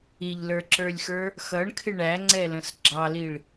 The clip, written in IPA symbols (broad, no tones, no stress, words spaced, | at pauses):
iʎlə˞ǁə˞lʲxə˞ | xʌɳkʰɪ ɳæŋ͡ǀɛlə̃s ɡ͡ǁɑliɭ